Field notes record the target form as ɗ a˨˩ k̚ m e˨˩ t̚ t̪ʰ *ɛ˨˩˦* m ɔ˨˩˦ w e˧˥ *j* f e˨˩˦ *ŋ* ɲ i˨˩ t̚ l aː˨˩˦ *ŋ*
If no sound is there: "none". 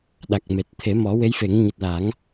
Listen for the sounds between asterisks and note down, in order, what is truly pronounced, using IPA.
e˨˩˦, j, ŋ, ŋ

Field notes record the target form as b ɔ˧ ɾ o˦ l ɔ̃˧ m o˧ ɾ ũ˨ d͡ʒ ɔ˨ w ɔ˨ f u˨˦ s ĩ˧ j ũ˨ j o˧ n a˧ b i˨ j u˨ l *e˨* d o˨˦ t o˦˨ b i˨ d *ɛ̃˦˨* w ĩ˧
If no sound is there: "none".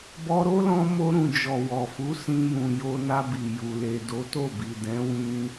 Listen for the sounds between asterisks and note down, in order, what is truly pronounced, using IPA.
e˨, ɛ̃˨˦

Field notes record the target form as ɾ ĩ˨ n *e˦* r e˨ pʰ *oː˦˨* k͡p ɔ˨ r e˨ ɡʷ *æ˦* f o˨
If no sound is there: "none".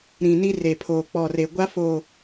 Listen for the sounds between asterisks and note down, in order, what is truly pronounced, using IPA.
i˦, oː˨, a˦

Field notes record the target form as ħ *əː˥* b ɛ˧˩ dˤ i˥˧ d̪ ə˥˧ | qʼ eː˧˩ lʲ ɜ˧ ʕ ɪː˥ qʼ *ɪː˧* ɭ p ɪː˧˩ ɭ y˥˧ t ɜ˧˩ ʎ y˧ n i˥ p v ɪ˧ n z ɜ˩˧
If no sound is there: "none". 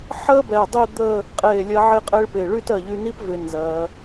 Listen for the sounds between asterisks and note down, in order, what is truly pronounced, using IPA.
əː˥, ɪː˥

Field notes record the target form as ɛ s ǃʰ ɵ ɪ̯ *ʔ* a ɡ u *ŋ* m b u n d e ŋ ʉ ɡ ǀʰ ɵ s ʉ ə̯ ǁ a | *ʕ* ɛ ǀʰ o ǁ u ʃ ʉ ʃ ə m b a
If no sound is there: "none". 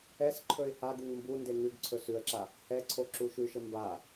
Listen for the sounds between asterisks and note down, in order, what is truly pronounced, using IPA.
h, ŋ, h

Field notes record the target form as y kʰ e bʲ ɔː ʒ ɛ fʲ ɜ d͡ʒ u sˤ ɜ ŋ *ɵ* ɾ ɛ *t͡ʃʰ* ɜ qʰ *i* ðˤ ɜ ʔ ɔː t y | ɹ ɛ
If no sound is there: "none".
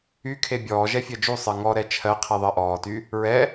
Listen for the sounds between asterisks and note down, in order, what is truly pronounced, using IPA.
ɔ, t͡ʃʰ, i

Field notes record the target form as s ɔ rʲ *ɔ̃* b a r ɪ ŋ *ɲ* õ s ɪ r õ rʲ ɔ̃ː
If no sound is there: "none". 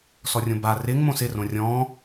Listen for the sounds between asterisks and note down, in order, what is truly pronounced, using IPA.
õ, m

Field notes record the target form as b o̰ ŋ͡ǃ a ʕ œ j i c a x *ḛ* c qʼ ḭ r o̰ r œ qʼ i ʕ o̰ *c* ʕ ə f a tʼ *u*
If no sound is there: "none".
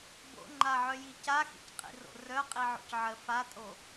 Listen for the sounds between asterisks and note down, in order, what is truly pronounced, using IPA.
ḭ, c, o

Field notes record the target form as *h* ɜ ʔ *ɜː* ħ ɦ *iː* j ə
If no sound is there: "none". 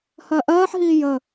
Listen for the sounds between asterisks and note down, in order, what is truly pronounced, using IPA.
h, ɜː, iː

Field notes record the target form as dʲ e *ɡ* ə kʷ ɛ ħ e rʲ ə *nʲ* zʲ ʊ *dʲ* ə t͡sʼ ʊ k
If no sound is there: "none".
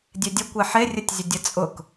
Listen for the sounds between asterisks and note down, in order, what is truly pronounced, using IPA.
dʲ, tʲ, dʲ

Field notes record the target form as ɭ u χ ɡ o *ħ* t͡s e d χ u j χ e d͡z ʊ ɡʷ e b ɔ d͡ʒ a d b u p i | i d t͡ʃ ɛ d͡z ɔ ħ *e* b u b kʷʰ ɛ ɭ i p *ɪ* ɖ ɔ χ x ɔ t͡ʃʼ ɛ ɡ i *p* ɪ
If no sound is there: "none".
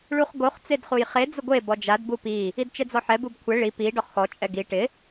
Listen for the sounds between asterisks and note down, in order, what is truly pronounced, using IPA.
χ, ɛ, i, ʈ

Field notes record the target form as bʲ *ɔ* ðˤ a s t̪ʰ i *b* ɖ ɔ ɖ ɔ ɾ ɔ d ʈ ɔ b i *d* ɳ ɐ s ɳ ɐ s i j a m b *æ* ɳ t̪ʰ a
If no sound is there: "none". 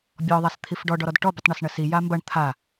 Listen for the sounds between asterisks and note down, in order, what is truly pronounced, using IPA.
ɔ, f, tˤ, ɐ

